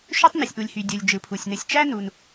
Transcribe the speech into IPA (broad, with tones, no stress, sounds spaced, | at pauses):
ʃ ø˥ tˤ n ɯ˩ sʲ ʔ u˩ lʲ h y˩ dʲ u˩ lʲ d͡ʒ ɯ˩ pʰ u˩ sʲ n ɯ˩ sʲ t͡ʃ æ˥ n u˩ n